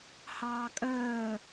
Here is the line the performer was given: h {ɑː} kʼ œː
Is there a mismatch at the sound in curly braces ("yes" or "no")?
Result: no